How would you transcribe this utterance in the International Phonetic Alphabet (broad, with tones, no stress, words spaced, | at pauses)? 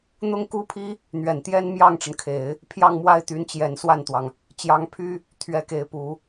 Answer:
n̪ʊ˥ŋku˥pʰi˥ | n̪ɥɛ˨˩nt̪jɛ˥n mjɑ˥˩ŋʈ͡ʂə˩nkʰe˨˩˦ɪ̯ | pʰjɑ˥˧ŋmwa˥˩ɪ̯t̪y˧˥nt͡ɕjɛ˨˩n swa˥˩nt̪wɑ˩ŋ | t͡ɕjɑ˧˥ŋpʰy˥ | t̪ʰɥɛ˧˥ke˧˥ɪ̯pu˨˩˦